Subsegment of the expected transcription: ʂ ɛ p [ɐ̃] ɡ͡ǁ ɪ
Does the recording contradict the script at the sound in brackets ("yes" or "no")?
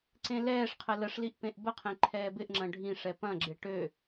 no